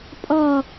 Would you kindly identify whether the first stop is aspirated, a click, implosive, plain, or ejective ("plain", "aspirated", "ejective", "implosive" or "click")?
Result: ejective